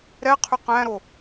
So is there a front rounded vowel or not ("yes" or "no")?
yes